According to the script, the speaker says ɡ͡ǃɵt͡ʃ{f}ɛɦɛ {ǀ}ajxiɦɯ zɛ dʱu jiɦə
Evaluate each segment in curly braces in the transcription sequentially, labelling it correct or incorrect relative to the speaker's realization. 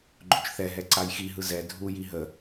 incorrect: θ, correct

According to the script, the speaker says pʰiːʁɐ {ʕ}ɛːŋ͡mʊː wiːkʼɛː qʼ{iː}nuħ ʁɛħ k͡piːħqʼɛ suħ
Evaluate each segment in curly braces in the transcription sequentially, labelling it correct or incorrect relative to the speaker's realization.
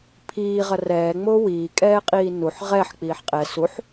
incorrect: r, correct

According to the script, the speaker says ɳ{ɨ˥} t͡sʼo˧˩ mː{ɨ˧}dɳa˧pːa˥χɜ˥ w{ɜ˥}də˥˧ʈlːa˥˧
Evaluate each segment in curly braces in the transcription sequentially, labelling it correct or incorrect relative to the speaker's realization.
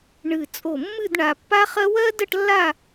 incorrect: ɨ˧˩, incorrect: ɨ˥˧, correct

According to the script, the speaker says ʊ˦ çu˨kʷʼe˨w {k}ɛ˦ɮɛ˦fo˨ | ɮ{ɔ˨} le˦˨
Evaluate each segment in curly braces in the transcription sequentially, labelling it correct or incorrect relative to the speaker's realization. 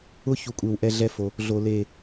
incorrect: ʔ, incorrect: o˨

